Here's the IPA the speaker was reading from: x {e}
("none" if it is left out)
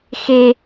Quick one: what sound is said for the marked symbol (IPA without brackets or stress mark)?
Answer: e